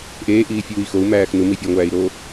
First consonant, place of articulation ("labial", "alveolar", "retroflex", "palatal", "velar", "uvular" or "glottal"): glottal